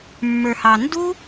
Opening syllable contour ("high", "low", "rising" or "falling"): low